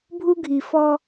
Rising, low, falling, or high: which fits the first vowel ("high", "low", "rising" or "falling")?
high